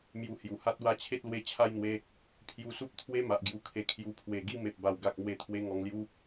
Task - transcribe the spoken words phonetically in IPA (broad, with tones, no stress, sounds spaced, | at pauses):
m j u˧ h j u˨˩ h a˦ t̚ w a˦ t͡ɕʰ e˦ t̚ l w e˧ t͡ɕʰ a˥˧ j n̪ w e˧ | pʰ j u˧ s u˦ p̚ t̪ʰ w e˦ m a˨ ʔ ɡ j u˧ kʰ e˧ kʰ j u˧ pʰ w e˨˩ ɡ i˦ m e˨ p̚ b a˨˩ w ɡ a˨ k̚ m w e˧ t̪ʰ w e˧ ŋ ɔ˨˩ ŋ l j u˧